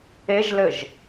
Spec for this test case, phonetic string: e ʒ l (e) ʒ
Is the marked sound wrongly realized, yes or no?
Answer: yes